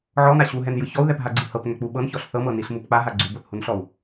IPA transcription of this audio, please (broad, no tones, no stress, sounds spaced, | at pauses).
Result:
ʕ ɔ n a ɕ u ɦ ɛ n j ɯ ç ɔ u̯ ð ɛ p ɦ a ɡ͡ǀ i h ɤ p ŋ ɛ k͡p u ɓ ɤ n ç ɔ ɬ θ ɤ m ɤ n i ɬ m u p k͡p a ɦ a ɡ͡ǀ u b o θ h u n ɬ ɔ u̯